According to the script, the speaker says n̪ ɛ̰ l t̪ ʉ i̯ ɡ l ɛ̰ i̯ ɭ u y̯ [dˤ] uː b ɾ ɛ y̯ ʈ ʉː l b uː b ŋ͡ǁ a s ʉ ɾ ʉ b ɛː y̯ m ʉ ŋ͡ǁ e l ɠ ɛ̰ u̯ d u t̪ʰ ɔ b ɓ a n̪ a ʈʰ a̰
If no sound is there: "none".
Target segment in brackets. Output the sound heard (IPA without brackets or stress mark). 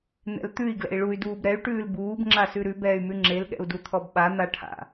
d